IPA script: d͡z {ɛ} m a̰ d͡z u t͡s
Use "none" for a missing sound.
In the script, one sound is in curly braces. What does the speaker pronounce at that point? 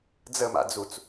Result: ə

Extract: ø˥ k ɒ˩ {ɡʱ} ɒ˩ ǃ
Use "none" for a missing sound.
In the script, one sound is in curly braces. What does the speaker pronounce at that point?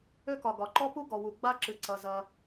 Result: ɡ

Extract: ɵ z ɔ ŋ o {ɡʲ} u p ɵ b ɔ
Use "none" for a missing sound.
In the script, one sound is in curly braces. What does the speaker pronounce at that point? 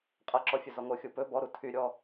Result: xʲ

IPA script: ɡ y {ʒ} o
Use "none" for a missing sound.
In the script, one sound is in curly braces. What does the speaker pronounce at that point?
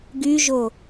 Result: ʒ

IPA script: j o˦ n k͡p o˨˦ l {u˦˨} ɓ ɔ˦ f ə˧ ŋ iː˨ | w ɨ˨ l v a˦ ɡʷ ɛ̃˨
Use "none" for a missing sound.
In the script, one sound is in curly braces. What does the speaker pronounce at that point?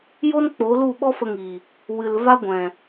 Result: u˦˨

